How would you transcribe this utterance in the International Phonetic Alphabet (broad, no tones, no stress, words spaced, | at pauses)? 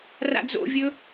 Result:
ra̰d͡zo̰vʲɵ